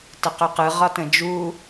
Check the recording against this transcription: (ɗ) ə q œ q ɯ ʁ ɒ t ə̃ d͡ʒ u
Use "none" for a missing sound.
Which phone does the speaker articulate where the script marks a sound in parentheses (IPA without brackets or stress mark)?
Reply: t